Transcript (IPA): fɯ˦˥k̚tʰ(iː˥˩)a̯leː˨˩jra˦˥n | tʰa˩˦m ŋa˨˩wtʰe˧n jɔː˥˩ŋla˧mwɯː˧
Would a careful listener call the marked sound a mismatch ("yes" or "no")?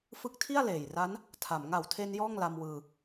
yes